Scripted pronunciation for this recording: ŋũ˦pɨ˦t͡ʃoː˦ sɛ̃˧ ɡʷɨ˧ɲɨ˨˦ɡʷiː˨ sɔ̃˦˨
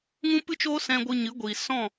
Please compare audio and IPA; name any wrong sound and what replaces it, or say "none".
none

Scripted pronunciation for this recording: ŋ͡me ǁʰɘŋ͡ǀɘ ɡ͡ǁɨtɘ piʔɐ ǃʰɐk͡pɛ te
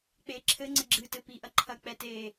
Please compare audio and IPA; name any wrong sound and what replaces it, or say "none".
ŋ͡m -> k͡p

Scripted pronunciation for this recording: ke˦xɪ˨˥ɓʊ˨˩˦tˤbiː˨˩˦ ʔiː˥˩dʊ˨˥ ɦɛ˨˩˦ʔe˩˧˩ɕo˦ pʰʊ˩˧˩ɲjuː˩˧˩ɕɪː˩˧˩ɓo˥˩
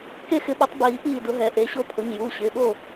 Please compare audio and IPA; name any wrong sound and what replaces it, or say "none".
none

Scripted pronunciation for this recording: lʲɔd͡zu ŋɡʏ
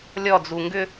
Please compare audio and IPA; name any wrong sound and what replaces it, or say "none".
none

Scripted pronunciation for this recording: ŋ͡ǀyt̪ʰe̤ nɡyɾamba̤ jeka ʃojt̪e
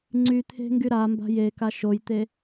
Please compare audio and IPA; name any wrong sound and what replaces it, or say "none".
n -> ŋ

